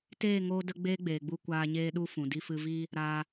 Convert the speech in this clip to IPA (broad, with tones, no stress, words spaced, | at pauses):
teː˦˨ŋoː˧də˧ ɡ͡beː˦ɡ͡beː˨ɡ͡bu˧ kʷaː˧ɲeː˦ɗu˦ fũ˨di˧fɨ˧viː˦ | ɾaː˧